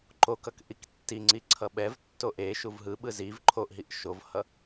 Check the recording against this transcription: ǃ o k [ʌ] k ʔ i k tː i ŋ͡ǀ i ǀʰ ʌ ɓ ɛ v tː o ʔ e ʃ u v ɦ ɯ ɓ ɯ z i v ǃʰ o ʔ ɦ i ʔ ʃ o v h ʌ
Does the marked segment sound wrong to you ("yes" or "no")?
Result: no